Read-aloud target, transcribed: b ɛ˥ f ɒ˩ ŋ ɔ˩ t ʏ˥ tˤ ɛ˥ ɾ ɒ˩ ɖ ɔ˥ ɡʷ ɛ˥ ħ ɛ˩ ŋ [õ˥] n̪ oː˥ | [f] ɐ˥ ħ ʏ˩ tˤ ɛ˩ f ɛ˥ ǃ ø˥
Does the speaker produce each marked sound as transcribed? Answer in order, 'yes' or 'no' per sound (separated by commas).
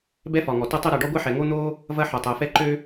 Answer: no, no